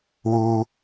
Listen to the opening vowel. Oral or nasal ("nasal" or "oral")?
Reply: oral